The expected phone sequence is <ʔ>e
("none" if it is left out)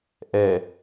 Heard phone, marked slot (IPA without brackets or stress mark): ʔ